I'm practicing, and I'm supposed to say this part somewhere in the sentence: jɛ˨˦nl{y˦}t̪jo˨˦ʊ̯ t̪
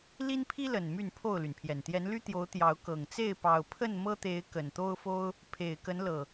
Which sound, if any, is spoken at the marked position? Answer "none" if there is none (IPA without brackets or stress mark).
y˦